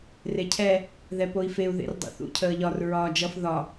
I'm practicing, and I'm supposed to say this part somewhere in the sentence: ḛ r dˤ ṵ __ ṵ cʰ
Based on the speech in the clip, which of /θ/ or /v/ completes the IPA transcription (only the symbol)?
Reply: θ